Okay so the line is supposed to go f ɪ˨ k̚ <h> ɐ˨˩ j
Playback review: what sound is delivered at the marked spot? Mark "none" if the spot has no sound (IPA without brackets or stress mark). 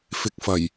f